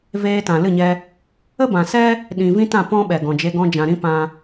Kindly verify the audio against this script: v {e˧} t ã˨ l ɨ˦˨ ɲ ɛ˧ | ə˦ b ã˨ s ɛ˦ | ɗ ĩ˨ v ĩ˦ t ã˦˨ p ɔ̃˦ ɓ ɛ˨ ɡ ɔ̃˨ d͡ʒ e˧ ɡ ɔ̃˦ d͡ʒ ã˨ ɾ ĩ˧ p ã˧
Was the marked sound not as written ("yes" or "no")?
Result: yes